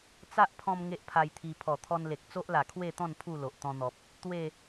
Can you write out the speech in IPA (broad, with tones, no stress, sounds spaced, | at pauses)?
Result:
t͡s a˦ ʔ pʰ ɔ̃˧ m ŋ e˦ ʔ pʰ a˧ j t̪ʰ i˧ pʰ ɔ˨˩ t̪ʰ ɔ˧ n l e˨ k̚ t͡s o˦ ʔ l a˨˩ kʰ w e˥˧ t̪ ɔ̃˥˧ n pʰ u˥˧ l o˨ ʔ t̪ ɔ̃˧ n̪ ɔ˨ p̚ | t̪ w e˥˧